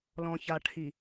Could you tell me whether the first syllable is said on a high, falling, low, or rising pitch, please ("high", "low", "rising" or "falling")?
low